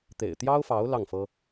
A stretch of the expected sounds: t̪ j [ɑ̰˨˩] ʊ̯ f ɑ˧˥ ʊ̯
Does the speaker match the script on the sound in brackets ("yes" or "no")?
no